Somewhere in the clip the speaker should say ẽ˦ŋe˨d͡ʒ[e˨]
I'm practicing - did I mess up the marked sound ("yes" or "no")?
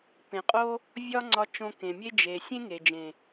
yes